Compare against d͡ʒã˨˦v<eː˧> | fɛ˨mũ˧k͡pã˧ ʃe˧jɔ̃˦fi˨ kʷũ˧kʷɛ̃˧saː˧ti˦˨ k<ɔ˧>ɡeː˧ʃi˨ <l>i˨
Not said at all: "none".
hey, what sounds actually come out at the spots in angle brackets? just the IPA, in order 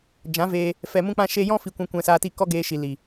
eː˧, ɔ˦, l

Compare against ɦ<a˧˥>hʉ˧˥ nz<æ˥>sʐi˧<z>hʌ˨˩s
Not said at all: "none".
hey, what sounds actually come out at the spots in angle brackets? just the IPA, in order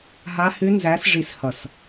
a˧˥, æ˧˥, s

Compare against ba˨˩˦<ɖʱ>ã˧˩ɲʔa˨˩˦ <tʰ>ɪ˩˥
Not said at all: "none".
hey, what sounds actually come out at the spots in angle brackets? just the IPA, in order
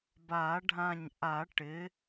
ɖʱ, ʈ

